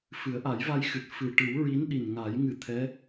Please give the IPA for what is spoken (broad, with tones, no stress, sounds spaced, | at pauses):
f ɨ˨˩˦ ə̯ ʔ a˨˩˦ j v a˧ j x ɨ˨˩ t̚ f ɨ˨˩ ʈ ɨ˨˩˦ w ɹ i˧˥ n ɗ i˨˩ n ŋ a˨˩˦ j ŋ ɨ˨˩ t̪ʰ ɛ˧˥